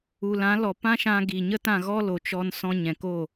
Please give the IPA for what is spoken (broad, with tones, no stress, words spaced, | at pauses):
u˨lã˨˦lɔ˨ pã˦ʃã˧ ɡi˨ɲə˦tã˦˨ ɣɔ˦lo˨t͡ʃɔ˧n sɔ̃˧ ɲɛ̃˨ko˦˨